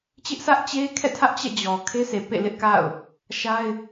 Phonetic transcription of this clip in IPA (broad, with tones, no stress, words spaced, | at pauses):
t͡ɕɪ˦ʔsʰä˦ʔ t͡ɕe˦kʰɛ̰˦˨tʰä˦ʔ t͡ɕɛ̰˦˨d͡ʑɔ˨ kʰe˦sʰe˨ pḛ˦˨lɪ˦ʔka̰˦˨ʊ̯ | ʃa˦ɪ̯